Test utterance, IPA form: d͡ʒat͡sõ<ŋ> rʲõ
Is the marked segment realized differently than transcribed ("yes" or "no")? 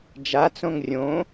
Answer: no